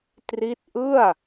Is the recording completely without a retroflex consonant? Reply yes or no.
yes